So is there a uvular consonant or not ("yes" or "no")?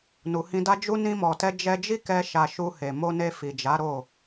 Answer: no